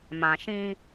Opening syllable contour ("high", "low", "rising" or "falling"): low